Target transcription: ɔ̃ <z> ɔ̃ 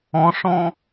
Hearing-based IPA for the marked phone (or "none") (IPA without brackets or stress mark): ʂ